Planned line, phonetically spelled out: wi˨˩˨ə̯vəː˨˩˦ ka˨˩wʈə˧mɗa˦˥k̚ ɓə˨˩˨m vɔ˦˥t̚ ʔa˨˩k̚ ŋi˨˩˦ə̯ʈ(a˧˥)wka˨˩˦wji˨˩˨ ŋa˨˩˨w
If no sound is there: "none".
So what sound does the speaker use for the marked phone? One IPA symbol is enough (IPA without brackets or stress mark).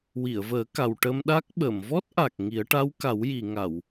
a˧˥